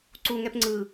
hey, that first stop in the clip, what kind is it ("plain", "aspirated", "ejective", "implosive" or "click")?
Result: click